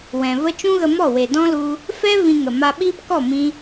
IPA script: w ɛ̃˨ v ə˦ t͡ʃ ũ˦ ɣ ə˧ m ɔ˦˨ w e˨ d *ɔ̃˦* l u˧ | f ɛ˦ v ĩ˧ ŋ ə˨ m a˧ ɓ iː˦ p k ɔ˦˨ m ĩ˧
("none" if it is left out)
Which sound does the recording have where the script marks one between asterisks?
ɔ̃˦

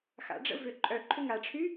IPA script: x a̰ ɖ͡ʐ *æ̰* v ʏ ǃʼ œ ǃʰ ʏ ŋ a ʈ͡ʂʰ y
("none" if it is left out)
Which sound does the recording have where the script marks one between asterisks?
ə̰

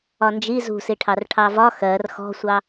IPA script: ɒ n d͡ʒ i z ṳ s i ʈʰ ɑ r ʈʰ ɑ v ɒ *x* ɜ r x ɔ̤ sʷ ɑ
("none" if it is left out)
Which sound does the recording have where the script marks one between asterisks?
x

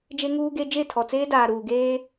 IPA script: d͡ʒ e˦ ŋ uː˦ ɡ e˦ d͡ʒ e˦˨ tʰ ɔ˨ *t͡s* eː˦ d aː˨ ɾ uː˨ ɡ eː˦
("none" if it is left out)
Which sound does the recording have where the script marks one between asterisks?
t͡s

